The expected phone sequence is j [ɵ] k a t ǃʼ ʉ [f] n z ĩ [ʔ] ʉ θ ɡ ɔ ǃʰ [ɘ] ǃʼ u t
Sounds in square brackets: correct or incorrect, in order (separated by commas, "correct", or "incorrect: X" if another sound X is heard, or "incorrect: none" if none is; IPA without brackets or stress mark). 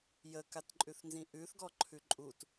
incorrect: ə, incorrect: θ, correct, incorrect: ʉ